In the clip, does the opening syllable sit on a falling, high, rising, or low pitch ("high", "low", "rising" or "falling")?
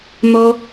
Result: high